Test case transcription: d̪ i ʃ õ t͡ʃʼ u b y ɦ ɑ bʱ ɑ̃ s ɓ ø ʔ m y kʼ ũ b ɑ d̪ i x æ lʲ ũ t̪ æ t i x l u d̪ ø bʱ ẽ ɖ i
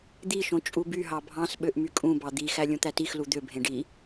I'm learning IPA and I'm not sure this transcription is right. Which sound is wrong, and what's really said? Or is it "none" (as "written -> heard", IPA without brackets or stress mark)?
none